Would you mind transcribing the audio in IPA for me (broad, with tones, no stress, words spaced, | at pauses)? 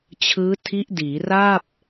t͡ɕʰɯː˦˥ tʰi˦˥ʔdiː˩˦ ra˥˩p̚